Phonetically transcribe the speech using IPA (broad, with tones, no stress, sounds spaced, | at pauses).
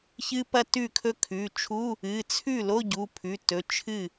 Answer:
ç ɨ˦˥ p ɐ˥˧ t ʉ˥˩ kʰ ɵ˦˥ kʰ ʉ˩˧˩ t͡ʃʰ u˧˥˧ | ɨ˩˧˩ t͡sʰ ʉ˥˩ l o˧˥˧ ɟ u˩˧˩ pʰ ʉ˩˧˩ t ɵ˩˧˩ t͡ʃʰ ɨ˥˩